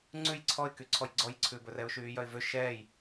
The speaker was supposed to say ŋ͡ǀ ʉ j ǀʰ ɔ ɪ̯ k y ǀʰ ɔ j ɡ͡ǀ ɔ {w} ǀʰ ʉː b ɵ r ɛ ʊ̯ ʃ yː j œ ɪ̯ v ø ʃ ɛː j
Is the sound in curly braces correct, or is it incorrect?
incorrect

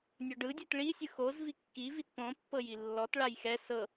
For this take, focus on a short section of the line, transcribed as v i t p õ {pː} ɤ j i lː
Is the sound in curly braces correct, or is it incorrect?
correct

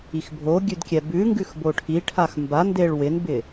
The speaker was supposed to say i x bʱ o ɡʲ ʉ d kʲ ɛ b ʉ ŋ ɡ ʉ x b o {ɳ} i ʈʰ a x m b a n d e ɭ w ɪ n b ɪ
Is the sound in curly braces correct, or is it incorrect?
incorrect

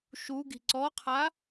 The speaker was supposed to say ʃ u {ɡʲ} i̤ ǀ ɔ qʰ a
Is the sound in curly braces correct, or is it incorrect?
incorrect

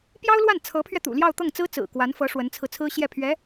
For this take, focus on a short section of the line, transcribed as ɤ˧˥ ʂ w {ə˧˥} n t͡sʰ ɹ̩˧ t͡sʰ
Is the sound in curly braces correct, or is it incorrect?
correct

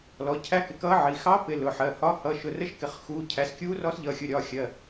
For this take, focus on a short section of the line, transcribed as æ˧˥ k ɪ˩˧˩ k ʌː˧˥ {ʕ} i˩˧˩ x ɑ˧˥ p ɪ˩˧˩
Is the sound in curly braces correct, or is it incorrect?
correct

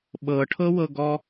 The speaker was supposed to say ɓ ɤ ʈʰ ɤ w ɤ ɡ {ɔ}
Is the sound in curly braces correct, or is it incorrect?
correct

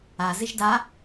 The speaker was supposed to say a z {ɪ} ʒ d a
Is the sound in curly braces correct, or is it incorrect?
correct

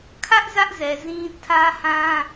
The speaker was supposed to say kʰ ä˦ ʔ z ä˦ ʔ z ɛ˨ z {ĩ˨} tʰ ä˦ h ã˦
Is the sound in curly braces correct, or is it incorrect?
incorrect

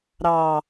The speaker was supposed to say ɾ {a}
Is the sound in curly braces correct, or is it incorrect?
incorrect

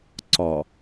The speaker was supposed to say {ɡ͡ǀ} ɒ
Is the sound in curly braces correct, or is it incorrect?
incorrect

